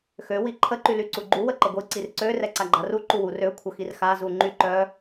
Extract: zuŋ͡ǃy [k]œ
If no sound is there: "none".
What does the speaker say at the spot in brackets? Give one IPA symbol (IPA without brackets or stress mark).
ǃ